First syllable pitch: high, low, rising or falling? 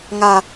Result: high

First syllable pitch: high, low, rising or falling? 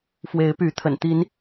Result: rising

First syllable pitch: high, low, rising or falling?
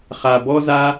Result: low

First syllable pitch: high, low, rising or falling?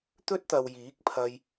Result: high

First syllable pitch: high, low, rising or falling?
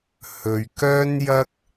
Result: low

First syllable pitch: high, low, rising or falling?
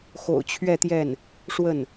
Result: low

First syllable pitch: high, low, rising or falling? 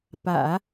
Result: low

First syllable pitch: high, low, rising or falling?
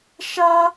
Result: high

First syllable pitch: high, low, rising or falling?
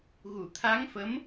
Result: low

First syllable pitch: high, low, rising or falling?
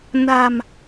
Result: low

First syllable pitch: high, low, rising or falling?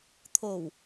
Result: low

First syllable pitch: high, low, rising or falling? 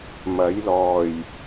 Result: rising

